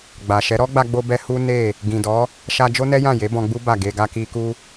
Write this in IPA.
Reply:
ɡ͡ba˨ʃɛ˨˦ ɾɔ˦ɡ͡ba˧ɡ͡bo˧bɛ˧ hu˦ne˦˨ | ɡĩ˨dɔ˨˦ | ʃa˧ d͡ʒo˦nɛ˦jã˦˨ je˨˦bɔ̃˧ɡ͡bu˦ ba˦˨ɡe˧ ɡa˧ki˧ku˦

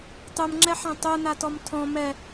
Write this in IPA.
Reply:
tˤumŋ͡ǁɛħã tˤunatɔm tʰɔ̃ mɛ

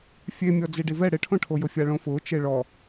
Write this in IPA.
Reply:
fʲemʲɔ d͡ziɖivɛ ɽɪʈʰõʈʰo jʊfʲaɭõfʊː t͡ʃeɭɔ

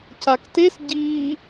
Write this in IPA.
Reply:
caktes ɟiː

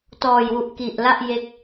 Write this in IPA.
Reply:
tɔː˨˩jwu˨˩ʔ ki˨˩ʔla˥˩ʔ je˦˥k̚

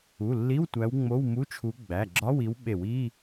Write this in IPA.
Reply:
u˩˧˩lːi˧˥˧wtʷæ˨˦w ŋ͡mo˧˥˧wmu˧˥˧t͡ʃʰu˨˦ ɡ͡bæ˩˧˩ɡ͡ǁɒ˧˥˧wi˨˦w ɓe˧˩˧wi˧˥˧

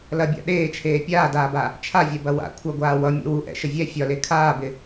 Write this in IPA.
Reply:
lɐbʲa̰ ɗeːt͡ʃʰeː pʲaːdaːba | t͡ʃʰavʲɛbɐ wa̰ kʷʰɐɡʷaː wʌmʲɛ̰ wu ʔɛ̰ʃə vʲɛ fʲɒle kʰaːbɪ

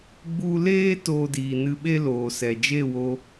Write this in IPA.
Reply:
ɡ͡bu˧leː˦ toː˧diː˨nɨ˧ɓe˦ loː˨sɛ˨ d͡ʒe˦˨wo˧

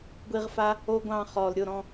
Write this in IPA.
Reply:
ɡʷi˧ʁfa˦ | o˦ ɡʷɑ̃˧χɔ˨lɾʲʊ˦˨ ɾɔ̃˧

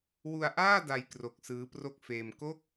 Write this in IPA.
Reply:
wu˧a̯ʔaː˥˩ da˧jkro˨˩k̚ sɯː˦˥pro˥˩k̚ feː˧m ko˦˥k̚

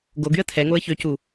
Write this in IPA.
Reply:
ɡoɡyə̯ tʰɛŋoə̯ çøcu

